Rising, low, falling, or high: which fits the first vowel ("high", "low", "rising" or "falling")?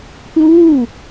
falling